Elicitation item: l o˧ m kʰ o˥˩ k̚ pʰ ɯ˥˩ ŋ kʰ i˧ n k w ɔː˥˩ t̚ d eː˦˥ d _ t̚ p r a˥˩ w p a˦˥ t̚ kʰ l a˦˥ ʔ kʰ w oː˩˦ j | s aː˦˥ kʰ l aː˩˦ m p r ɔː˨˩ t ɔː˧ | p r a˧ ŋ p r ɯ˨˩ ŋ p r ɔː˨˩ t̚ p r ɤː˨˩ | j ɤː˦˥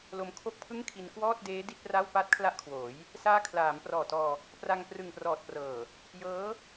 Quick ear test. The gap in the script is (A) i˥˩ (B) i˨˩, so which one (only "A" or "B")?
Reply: A